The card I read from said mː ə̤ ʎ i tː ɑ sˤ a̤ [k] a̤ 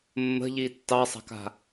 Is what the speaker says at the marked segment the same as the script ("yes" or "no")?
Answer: yes